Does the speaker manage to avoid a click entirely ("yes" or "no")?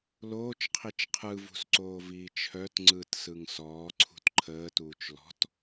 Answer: no